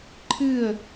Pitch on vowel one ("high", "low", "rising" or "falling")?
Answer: falling